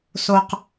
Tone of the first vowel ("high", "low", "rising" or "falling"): low